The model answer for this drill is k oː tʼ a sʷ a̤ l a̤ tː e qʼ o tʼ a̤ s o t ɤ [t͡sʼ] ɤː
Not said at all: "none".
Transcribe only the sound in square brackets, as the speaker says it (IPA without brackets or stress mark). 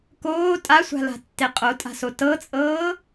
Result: t͡sʼ